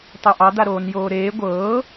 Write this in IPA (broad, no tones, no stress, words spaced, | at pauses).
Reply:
tˤɛʔɑd̪aɾoːn joːɾeː ɡʷɤː